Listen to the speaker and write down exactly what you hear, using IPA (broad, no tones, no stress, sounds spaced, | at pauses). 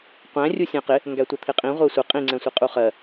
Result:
qʷ æ̃ rʲ u sʲ æ̃ q ɪ | ŋ ɡ æ tʷ ʌ t̪ʰ ɪ qʼ ĩ ʁʷ ɛ sʷ ɪ qʼ ĩ ŋ͡ǀ ɛ̃ sʷ i qʼ u χ ɜ